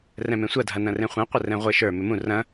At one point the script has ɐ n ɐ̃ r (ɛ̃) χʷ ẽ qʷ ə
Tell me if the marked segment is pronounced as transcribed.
no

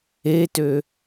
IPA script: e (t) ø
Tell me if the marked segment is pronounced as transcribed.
yes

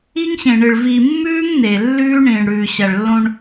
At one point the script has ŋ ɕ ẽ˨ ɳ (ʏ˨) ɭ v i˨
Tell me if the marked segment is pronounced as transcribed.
no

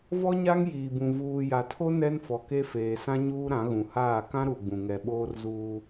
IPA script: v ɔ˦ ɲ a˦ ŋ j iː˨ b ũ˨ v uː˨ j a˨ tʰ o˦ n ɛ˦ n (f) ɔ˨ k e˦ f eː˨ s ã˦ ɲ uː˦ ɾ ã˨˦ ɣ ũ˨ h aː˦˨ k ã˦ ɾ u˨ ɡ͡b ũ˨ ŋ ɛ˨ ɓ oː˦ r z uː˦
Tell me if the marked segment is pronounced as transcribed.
yes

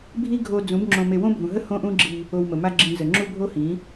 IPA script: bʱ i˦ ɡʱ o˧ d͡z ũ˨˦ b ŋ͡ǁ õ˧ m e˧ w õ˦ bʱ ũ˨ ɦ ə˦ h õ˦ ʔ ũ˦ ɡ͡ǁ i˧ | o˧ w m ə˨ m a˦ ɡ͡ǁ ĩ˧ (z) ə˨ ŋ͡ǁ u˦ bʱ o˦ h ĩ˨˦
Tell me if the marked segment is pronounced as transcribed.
yes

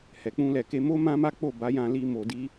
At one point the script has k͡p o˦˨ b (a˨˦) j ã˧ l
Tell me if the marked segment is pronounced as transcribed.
yes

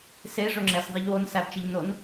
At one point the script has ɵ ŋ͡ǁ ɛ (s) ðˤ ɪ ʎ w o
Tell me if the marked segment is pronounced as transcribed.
yes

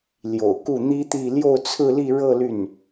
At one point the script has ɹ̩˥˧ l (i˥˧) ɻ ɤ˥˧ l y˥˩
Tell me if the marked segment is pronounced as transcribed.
yes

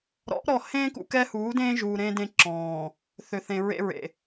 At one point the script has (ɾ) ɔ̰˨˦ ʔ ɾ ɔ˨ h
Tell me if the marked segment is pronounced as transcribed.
yes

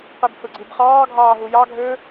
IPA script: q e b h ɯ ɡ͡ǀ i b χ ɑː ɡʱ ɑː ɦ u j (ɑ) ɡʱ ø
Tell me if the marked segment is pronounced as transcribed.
yes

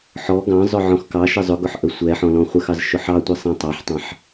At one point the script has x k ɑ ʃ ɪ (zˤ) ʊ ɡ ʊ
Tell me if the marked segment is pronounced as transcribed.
yes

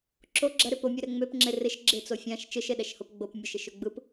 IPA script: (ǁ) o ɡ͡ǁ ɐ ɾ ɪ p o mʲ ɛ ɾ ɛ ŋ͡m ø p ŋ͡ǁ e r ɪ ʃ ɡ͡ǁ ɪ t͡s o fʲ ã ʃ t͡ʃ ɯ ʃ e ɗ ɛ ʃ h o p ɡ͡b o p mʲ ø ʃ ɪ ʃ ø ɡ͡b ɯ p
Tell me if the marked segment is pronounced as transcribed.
yes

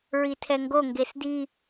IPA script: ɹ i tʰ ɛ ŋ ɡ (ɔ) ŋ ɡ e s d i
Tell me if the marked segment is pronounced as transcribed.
no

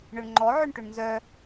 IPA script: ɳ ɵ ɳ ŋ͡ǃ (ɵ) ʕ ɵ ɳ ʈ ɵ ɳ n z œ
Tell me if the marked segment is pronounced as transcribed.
no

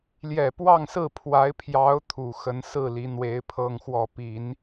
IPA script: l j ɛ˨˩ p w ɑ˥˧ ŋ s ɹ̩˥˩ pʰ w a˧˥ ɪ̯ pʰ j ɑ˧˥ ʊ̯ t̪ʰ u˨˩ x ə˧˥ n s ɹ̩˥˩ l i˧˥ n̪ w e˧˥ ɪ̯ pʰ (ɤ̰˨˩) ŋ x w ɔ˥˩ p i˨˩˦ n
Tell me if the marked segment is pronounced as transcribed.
no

